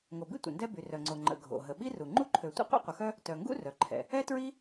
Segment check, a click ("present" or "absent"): present